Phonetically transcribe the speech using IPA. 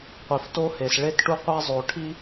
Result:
qʷi˨fto˦he˨s ɭe˦tʈu˦qʷa˦ zˤo˨ʈʰi˦

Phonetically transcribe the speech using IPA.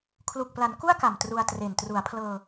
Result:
kʰlu˨˩k̚pla˩˦n ku˥˩a̯ka˨˩m tru˧a̯tre˨˩n tru˩˦a̯pʰlɤː˧

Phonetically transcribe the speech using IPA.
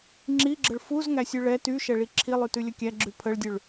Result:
ŋ͡ǁiɡ͡ǁəɭ fuzŋæsʲʉ ɭɛ tyʃɛɭi ǁʰilˠytʉlʲə kʲæɡ͡ǁʉ pʰəɭdʲʉɭ

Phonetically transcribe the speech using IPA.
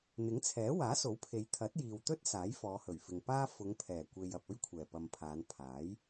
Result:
n̪ɪ˨˥ŋt͡sʰɛː˨˥ waː˨˥so˨˥wpʰe˨˧j t̪ʰɐ˨˥t̚jiː˨wt̪ɵ˥t̚ saː˨˥jfɔː˨˧hɵ˨˩ɥfɪ˨ŋ paː˥ fʊ˨˧ŋpʰɛː˨˩kʷe˨j ɐ˨p̚ɵ˥ɥkʷʰɛː˨˩ pɐ˨mpʰaː˨˧n pʰaː˨˥j

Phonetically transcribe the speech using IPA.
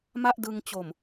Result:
ma˥˩ʔdɯ˧ŋ t͡ɕo˨˩m

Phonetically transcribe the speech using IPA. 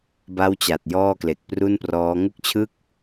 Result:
ba˥˩wt͡ɕa˨˩t̚ jɔː˥˩kle˨˩k̚pru˥˩nprɔː˦˥ ŋu˥˩k̚t͡ɕʰɯ˥˩k̚

